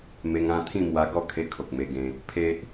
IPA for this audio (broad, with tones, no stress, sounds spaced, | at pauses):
m e˧ ŋ ã˥˧ t̪ʰ ĩ˥˧ m w a˧ ɡ ɔ˥˧ kʰ e˧ kʰ o˨ k̚ m e˧ ɡ ẽ˧ | pʰ e˦ ʔ